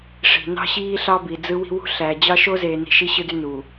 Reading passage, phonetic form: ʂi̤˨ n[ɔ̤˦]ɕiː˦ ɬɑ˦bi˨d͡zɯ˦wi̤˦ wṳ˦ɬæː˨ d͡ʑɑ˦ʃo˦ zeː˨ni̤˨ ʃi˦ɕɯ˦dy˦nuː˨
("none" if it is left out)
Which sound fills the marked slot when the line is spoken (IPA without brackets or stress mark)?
ɑ̤˦